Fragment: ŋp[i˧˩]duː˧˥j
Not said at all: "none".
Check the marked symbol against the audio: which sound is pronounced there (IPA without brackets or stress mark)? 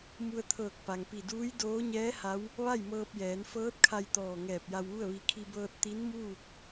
i˧˩